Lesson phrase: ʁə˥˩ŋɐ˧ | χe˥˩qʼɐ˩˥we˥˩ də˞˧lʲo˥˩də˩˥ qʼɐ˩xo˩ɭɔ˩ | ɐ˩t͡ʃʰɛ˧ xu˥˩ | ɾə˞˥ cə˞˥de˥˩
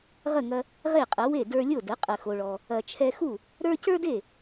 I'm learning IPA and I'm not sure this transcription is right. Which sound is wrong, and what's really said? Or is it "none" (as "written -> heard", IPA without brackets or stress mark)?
χ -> ʁ